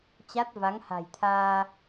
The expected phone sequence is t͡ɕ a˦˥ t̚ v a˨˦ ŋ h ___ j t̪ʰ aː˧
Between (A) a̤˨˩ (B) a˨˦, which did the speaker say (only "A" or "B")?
A